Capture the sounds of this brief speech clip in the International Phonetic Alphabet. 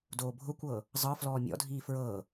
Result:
d oː bʱ ʊ kʷ ɤː | zˤ ɤ f l ɔː mʲ ɔ̰ dʱ iː f ɹ ɤː

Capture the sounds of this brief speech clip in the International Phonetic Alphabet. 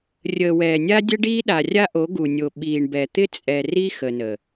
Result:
rʲ əː˨ w ɛː˨ nʲ a˦ dʲ ə˦ ɖ iː˦ ɗ a˨ rʲ a˦ ʔ o˨˦ ɡ u˨ nʲ o˨ ɓ iː˨ ɳ b ɛ˨ t̪ ɪ˦ t͡sʼ ɛ˨ r i˦ x ə˨ n ə˨

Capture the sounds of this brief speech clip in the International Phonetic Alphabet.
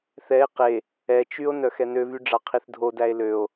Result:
θ ɛ e̯ q e | ɛ t͡ʃ y o̯ n œ x ɛ n ø v y ɖ͡ʐ ɑ qʰ i θ dʱ o d æ e̯ l ø o̯

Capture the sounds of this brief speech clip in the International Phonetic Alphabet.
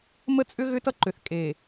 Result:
m ə˦ t͡sʼ ʏ˦ ɣ ʏ˦ t ʌ˦ ǃ ʏ˨ θ kʼ e˨

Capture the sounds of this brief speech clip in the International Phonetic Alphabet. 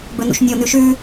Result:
b ɵ n ṵ ʃ nʲ o n ʉ ʃ ʉ

